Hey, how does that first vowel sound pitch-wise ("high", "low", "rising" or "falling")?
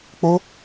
high